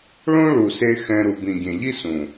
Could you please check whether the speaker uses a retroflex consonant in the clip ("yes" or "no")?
yes